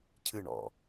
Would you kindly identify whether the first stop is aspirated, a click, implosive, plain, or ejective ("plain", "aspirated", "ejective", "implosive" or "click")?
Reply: aspirated